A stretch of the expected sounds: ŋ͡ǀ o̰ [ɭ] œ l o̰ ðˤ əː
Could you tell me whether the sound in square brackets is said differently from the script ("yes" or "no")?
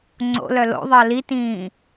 yes